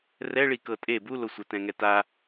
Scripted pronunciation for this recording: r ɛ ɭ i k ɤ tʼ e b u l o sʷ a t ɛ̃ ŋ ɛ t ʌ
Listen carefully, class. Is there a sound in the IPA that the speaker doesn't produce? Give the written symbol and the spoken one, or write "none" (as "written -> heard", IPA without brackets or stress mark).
ʌ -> a